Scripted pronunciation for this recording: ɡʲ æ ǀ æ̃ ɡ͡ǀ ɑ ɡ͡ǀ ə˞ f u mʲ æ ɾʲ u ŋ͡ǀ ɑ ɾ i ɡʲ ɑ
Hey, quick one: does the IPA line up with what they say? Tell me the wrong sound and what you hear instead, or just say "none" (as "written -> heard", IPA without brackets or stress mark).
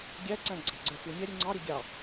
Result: none